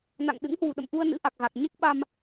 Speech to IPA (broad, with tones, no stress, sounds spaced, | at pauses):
n a̰˧˨ ŋ ɗ ɨ̰˧˥ ŋ h w ṳ˨˩ ɗ ə̰˧˨ m ʔ u˧ ə̯ n ɨ̰˧˥ ʔ a˨˩ k̚ ɣ a˨˩ k̚ ɲ e˦˥ k̚ ɓ a˧ m